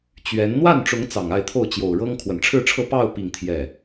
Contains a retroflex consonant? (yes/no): yes